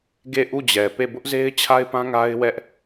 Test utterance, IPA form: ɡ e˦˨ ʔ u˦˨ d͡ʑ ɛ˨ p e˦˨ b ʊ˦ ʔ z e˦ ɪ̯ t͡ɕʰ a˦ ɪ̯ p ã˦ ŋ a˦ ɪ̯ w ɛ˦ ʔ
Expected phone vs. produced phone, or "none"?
none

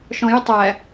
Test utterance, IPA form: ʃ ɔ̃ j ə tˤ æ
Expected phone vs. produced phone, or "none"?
none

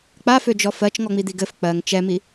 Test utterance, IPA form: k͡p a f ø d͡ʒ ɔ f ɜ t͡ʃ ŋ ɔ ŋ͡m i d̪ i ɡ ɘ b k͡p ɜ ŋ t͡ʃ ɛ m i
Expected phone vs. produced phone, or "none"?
b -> f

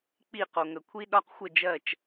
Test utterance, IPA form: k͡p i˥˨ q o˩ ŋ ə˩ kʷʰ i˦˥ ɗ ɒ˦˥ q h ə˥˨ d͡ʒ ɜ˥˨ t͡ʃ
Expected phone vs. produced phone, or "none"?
h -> xʷ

